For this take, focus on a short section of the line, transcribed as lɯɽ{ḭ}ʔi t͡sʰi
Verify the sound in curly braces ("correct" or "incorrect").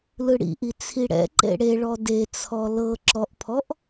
correct